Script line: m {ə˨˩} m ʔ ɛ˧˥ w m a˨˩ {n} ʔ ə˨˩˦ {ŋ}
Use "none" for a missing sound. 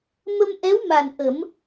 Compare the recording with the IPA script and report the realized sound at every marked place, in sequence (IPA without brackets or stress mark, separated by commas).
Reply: ə˧, n, m